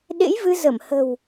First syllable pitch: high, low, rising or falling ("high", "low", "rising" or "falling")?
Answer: rising